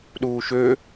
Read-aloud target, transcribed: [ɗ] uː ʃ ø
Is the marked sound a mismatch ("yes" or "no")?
no